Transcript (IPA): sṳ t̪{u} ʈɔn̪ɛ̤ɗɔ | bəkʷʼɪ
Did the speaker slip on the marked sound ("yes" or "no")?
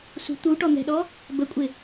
no